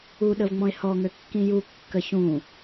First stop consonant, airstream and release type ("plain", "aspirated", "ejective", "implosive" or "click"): implosive